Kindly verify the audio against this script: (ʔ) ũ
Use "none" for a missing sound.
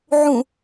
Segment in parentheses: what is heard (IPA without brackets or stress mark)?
ʕ